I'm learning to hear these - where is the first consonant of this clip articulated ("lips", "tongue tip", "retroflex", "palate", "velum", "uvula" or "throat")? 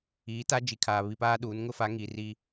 tongue tip